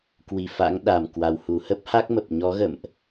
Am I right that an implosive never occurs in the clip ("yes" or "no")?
no